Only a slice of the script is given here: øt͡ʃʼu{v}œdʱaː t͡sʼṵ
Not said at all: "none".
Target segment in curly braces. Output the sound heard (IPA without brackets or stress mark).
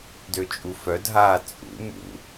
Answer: f